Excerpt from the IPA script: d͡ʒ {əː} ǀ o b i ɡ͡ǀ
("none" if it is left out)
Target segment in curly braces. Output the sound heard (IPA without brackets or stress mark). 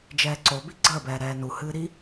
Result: ɛː